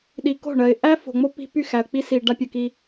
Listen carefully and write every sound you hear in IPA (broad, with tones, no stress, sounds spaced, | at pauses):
ɗ i˨ k o̤˦˨ ɳ ɜ˨ ɪ̯ ʔ æ˦ f o̤˨ ŋ͡m o˦ p i̤˦ p y˦˨ x æ˨ ə̯ k͡p i˦ s i˨ ɖ a˦ pʲ ɯ˨ k i˦